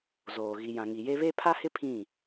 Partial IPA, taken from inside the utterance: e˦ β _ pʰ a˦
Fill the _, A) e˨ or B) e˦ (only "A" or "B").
B